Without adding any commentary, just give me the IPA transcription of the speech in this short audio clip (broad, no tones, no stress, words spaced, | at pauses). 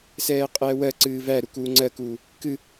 sɛːqʼɛːwɜ ǀɨːvæ ɾukuːŋ͡ǀɜkuː | kɨ